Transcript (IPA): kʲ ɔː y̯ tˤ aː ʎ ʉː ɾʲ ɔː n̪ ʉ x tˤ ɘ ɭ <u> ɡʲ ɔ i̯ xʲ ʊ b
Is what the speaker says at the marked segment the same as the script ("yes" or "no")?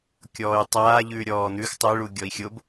yes